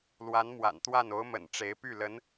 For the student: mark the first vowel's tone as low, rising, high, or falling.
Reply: rising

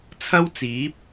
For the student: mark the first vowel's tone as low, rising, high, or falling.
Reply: high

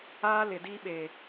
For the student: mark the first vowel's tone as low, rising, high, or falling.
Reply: high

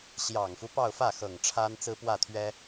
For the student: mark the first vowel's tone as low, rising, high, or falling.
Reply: low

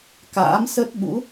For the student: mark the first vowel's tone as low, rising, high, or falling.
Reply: rising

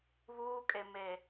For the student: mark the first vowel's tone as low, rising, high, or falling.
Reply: high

